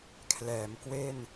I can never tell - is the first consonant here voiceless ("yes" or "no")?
yes